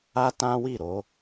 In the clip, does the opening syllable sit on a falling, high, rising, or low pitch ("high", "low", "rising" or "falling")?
high